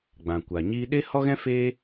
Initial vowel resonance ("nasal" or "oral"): nasal